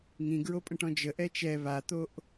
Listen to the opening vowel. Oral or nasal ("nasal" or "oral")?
nasal